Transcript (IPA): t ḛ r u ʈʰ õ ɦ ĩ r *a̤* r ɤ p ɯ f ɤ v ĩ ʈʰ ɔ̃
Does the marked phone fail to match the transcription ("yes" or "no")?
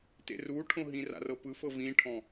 yes